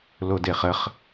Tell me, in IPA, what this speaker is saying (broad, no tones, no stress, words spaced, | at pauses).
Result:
lodeχəχ